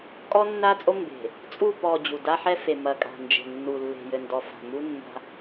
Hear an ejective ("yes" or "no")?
yes